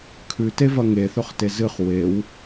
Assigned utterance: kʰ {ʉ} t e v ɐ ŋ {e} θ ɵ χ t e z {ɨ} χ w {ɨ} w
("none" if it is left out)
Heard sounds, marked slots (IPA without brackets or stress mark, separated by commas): ʉ, e, ɨ, e